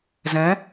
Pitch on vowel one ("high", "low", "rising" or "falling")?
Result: rising